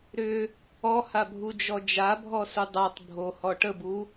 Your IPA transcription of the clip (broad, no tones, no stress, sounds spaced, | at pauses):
ɾ ʏ | ɔ h a bʱ u d͡ʒ ɔ d͡ʒ a bʱ ɔ s u dˤ a tˤ bʱ o h ɔ ʈ ə b u